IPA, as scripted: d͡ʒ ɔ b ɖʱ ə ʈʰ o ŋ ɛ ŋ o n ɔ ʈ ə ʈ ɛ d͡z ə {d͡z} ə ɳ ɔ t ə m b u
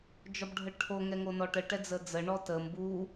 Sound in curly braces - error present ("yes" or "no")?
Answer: no